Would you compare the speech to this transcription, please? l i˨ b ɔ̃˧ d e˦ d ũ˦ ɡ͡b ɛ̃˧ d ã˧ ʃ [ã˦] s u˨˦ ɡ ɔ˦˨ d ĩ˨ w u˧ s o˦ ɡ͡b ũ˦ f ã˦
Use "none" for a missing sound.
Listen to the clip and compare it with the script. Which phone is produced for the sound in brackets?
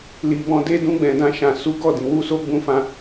ã˨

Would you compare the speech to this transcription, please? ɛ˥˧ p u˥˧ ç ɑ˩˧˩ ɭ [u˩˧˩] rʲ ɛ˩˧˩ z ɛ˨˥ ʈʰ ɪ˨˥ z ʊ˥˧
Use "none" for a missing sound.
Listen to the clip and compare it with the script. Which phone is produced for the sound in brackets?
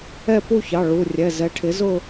u˩˧˩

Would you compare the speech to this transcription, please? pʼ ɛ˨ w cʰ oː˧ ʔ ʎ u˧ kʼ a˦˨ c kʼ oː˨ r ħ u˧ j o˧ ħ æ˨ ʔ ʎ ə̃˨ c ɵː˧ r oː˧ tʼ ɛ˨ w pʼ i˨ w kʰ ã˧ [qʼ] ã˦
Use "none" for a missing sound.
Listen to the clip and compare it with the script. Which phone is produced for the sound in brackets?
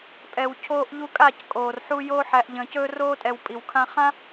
χ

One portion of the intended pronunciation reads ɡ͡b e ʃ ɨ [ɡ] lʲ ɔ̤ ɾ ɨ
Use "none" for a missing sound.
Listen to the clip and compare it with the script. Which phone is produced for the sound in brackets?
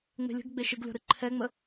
ɡ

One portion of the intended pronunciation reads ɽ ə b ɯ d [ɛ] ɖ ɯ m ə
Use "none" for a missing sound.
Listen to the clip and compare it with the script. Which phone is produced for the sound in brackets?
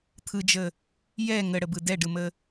ɛ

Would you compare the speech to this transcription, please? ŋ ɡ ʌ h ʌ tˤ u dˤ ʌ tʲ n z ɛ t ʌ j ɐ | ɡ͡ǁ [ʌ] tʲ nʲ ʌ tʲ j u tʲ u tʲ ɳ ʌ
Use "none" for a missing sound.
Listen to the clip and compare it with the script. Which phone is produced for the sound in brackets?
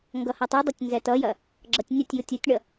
ʌ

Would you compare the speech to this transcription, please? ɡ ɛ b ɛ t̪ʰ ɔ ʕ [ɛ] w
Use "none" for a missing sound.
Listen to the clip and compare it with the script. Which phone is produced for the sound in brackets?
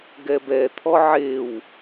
e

